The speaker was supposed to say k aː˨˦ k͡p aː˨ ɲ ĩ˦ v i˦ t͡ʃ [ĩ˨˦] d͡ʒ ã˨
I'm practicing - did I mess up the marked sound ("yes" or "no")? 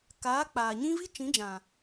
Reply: no